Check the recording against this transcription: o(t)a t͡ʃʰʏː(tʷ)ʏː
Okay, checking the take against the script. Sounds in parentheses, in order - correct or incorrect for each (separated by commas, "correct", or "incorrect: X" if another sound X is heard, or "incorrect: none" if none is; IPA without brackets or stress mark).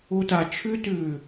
correct, incorrect: t